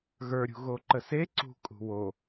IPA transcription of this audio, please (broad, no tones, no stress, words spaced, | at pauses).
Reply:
ɣə˞ɾʲṳ ɣoǃəse ǀṳ kʼṳwo